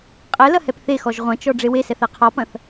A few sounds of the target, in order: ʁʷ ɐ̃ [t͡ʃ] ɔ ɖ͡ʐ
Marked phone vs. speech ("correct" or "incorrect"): correct